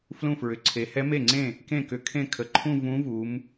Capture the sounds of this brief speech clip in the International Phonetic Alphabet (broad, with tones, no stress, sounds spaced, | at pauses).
f l ũ˥˩ f ɹ ʏ˩ ǀʰ e˩˧ h ɛ˧˥ m e˥˩ ŋ͡ǀ ẽ˥˩ | k ẽ˥˩ k ʏ˩˧ kʰ ẽ˥˩ kʰ ə˩˧˩ ǃʰ ũ˥˧ v ũ˧˥ v u˩˧ m